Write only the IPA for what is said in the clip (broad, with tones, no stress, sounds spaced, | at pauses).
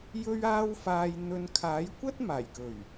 j ɵ˧ ɥ aː˧ w f aː˨ j n̪ ɵ˨ n kʰ aː˨˥ j kʷ ɐ˥ t̚ m aː˨˩ j k ɵ˨˩ ɥ